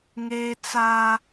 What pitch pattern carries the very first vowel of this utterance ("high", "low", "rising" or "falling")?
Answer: high